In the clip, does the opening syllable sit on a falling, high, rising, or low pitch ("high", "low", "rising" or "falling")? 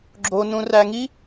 low